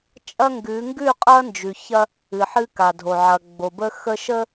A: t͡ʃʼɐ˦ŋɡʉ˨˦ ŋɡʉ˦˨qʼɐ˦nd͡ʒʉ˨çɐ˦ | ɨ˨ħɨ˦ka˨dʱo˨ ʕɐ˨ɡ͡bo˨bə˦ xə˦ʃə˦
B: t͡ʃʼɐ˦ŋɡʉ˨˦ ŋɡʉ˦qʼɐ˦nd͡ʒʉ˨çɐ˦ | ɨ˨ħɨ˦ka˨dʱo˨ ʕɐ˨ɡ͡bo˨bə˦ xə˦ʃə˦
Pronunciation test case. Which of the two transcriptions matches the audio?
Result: A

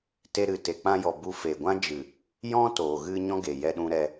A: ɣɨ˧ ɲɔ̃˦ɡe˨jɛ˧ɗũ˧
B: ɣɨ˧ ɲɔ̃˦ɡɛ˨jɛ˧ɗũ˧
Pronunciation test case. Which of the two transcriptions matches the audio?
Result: A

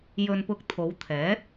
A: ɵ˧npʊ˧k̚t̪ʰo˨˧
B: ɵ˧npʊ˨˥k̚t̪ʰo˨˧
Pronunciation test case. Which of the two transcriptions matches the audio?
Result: A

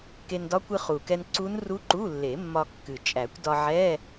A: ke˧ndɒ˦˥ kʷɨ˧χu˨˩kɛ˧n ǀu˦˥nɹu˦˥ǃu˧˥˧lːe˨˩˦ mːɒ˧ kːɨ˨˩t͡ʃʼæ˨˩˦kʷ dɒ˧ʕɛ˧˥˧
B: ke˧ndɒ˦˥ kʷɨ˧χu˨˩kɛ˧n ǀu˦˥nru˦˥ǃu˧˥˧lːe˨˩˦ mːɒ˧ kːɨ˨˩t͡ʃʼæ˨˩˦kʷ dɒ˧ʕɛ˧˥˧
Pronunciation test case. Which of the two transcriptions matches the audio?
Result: B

